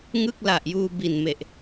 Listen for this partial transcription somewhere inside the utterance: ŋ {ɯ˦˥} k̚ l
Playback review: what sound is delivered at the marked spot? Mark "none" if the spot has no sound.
ɯ˥˩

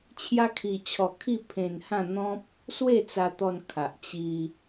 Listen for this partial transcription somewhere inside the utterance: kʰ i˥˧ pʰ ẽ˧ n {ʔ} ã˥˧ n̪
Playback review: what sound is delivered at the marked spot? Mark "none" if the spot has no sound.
h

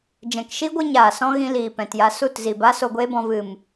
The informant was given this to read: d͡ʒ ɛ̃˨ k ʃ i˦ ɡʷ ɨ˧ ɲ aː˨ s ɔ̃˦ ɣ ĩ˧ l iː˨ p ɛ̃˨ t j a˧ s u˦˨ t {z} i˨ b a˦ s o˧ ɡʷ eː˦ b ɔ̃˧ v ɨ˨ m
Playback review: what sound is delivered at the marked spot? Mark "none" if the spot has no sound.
z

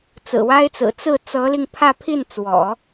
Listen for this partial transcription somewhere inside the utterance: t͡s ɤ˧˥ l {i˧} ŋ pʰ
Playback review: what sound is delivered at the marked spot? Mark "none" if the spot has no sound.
i˧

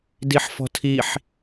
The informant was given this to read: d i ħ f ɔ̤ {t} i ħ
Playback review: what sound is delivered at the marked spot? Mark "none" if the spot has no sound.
tʰ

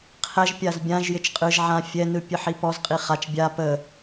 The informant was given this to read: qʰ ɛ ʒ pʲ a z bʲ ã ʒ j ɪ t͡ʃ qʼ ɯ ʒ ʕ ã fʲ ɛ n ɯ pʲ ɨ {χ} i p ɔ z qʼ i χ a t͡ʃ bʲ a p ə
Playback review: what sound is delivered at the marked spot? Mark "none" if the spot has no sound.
ħ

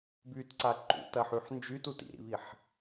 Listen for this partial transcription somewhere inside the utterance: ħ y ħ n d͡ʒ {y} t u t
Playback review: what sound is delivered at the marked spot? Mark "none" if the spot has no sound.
y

